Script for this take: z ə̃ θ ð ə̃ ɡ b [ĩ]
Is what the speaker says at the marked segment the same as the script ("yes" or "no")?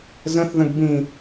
yes